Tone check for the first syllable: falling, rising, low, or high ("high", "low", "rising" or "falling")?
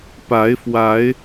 rising